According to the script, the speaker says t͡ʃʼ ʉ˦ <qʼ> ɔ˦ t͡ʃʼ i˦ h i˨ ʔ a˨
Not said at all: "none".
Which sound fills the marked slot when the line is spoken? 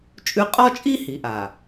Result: qʼ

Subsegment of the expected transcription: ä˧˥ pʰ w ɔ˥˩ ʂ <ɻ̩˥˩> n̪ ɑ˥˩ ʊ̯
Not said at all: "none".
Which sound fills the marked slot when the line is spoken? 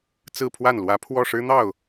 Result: ɻ̩˥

